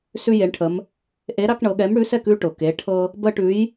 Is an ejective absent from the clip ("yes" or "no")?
yes